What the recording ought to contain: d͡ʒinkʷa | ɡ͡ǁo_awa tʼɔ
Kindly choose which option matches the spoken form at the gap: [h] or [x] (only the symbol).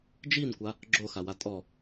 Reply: x